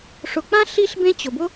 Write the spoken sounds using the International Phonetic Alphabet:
ʂ ʊ˧ k͡p ã˥ ɬ i˥ ɬ b ẽ˥ t͡ɕ ʊ˧ b ʊ˥

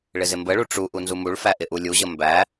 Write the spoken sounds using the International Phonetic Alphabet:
ɭ ɪ z ɪ m b ə ɭ u ʈ͡ʂ u ʔ u n z u m u ɭ f æ ʔ ɪ ʔ u lʲ u ʑ ə m b æ

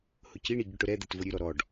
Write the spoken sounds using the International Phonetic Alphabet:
h ʊ c i ɳ i ɟ ʊ ʈ ʊ ɾ ɛ d̪ ɛ t v ʊ ɾʲ ʉ ɾ ɔ ɾ ɔ ɖ

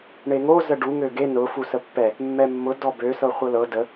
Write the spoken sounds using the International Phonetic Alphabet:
ɳ e ŋ o z ə ɖ u ŋ ø ɡ e n ʊ f u s ə pː ɛ | mː ɛ mː ʊ d ɔ b ø s ɤ χʷ ɤ l ɤ d ə

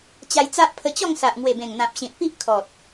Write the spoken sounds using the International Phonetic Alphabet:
t͡ɕ a˧ j t͡s a˦ ʔ pʰ ə˧ t͡ɕ ɔ˥˧ ŋ s a˨ ʔ ŋ w e˨˩ b ẽ˨˩ ŋ n̪ ã˨ p̚ ɕ ĩ˨ t̚ p i˦ ʔ kʰ ɔ˨ t̚

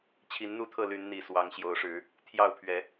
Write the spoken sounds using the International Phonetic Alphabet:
t͡ɕʰ i˨˦ n n̪ u˥˨ t̪ʰ ɤ˥˨ l y˨˦ n n̪ i˨˩ s w ɑ˨˦ ŋ ɕ j o˨˦ ʊ̯ ʂ ɻ̩˨˦ | t̪ʰ j ɑ˥˨ ʊ̯ pʰ ɥ ɛ˨˦

